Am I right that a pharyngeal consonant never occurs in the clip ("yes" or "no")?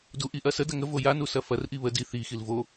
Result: yes